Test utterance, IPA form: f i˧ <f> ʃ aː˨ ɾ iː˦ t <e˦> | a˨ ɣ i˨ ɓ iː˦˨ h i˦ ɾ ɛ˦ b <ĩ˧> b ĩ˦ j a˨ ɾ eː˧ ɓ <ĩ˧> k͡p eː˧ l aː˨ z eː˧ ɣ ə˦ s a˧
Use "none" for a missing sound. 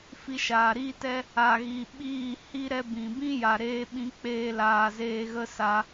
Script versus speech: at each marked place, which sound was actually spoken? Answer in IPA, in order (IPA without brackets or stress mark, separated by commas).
none, ɛ˦, ĩ˨, ĩ˧